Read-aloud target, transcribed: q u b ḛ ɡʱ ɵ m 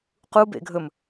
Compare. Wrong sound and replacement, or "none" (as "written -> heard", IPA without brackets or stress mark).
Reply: none